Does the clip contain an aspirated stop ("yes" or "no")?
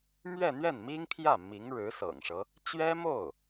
yes